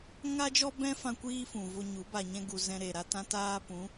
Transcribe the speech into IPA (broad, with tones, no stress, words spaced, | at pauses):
ŋa˦ d͡ʒɔ˦bɛ̃˦fã˧ kʷiː˦fũ˨vo˧ɲu˨˦ ba˨ɲɛ̃˧ɡu˨ zɛ̃˧ɾe˨ɾa˦tã˦ taː˧pũ˨˦